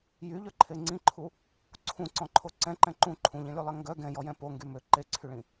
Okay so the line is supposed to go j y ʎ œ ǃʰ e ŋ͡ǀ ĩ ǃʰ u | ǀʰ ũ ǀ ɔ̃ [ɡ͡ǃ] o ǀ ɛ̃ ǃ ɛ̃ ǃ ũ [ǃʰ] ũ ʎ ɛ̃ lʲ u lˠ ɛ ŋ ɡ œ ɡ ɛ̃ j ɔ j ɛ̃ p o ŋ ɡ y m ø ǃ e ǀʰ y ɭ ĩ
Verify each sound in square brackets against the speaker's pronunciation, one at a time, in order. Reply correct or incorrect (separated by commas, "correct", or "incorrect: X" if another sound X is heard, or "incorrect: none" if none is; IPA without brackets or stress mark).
incorrect: ǃʰ, correct